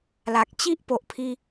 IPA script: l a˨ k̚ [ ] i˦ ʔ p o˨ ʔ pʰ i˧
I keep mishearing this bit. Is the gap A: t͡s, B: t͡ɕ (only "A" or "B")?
B